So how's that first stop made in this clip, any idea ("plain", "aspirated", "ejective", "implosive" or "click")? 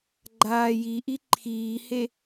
click